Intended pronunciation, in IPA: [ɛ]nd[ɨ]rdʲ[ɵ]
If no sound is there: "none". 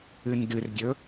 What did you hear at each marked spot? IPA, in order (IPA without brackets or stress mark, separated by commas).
ɨ, ɨ, ɵ